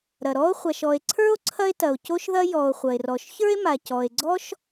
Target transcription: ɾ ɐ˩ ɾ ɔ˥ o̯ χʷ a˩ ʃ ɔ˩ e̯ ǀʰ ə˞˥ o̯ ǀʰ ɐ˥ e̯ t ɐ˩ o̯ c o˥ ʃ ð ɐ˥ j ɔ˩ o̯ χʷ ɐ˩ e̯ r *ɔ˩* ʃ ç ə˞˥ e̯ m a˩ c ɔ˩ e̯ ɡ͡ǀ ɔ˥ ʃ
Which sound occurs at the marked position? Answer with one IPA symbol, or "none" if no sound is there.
ɔ˩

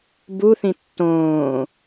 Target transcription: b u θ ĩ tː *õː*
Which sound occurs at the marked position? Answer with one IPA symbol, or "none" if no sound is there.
õː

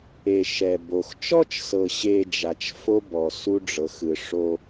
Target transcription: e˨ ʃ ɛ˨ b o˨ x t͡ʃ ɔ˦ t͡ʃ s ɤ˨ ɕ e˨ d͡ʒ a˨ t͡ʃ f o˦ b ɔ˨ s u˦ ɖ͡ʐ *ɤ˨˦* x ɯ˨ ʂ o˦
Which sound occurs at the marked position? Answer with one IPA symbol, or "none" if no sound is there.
ɤ˨˦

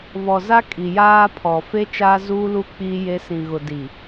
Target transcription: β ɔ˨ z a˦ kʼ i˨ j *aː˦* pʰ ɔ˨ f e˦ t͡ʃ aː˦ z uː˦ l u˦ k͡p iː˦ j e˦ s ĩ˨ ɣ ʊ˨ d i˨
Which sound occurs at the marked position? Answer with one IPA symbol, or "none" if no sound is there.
aː˦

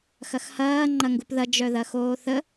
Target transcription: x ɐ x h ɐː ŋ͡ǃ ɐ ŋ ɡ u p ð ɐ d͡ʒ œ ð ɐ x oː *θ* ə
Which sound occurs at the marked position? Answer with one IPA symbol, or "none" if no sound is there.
θ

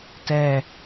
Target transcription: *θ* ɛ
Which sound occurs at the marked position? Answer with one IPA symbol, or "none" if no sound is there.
t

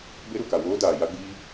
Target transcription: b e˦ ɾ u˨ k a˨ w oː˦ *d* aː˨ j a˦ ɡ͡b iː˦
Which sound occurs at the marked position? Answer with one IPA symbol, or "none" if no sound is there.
d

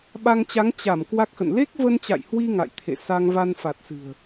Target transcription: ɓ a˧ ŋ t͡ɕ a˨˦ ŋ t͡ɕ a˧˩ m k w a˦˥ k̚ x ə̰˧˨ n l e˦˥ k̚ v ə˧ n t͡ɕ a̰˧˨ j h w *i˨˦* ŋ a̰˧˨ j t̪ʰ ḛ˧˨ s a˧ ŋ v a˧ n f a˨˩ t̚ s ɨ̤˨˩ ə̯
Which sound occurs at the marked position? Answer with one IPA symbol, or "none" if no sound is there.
i˧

